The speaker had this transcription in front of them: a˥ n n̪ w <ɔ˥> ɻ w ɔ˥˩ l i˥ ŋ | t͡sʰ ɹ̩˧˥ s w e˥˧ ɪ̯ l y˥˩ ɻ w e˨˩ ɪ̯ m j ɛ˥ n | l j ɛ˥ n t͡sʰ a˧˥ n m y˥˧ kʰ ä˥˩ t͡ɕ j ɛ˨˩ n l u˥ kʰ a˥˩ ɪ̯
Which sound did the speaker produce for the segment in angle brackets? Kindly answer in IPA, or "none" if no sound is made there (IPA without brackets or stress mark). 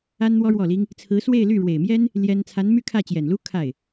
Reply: ɔ˥